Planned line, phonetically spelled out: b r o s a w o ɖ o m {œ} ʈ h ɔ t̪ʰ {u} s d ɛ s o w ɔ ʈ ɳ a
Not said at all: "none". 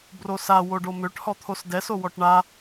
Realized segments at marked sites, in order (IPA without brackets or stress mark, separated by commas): ø, o